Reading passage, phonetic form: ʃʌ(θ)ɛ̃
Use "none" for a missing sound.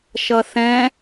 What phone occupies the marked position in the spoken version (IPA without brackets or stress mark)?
θ